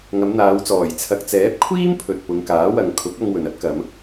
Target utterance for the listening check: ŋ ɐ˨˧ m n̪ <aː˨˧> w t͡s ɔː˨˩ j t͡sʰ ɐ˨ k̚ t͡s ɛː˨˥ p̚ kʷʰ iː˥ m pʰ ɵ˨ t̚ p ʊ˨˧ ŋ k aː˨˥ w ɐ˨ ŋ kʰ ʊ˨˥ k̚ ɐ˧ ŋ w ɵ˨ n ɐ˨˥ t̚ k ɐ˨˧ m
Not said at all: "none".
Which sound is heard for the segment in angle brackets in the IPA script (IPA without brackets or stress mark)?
aː˨˧